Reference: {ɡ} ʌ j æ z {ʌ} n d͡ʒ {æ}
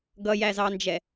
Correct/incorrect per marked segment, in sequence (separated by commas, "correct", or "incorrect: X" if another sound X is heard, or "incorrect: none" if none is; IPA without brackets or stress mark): correct, incorrect: ɑ, incorrect: ɛ